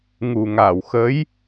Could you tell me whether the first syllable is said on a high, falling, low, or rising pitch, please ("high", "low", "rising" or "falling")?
low